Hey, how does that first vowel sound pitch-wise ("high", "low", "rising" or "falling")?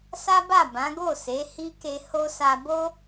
high